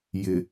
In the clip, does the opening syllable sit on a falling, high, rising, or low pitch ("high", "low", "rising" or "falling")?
low